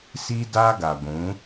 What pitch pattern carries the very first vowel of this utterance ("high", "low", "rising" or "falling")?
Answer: high